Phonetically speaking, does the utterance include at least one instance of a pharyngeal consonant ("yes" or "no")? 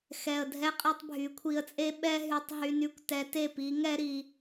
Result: no